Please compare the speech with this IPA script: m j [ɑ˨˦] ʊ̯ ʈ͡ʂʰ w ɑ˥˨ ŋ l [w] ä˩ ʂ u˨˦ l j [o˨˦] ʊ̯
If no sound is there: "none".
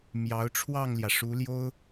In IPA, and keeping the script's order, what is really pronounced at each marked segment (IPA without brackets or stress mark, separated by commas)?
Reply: ɑ˨˦, j, o˦